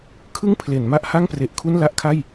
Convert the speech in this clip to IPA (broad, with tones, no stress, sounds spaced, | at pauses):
kʰ ɯ˥˩ ŋ pʰ l e˩˦ n m a˥˩ ʔ h a˥˩ ŋ p r e˨˩ ʔ kʰ u˥˩ n l a˥˩ ʔ kʰ a˥˩ j